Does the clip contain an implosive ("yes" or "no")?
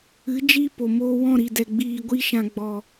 no